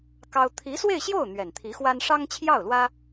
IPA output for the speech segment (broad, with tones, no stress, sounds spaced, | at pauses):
k ɑ˥ ʊ̯ t̪ʰ i˧˥ s w e˥˧ ɪ̯ ɕ j o˥˩ ʊ̯ n̪ ɥ ɛ˨˩ n t̪ʰ i˧˥ x w a˥ n ʂ ɑ˥ ŋ t͡ɕʰ j ɑ˥˩ ʊ̯ l w ä˥